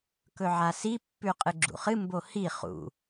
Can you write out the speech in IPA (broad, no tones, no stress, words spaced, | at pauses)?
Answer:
kɵʕasi pːʉqʼɨɡ͡ǁṵχɨ mbohi χṵ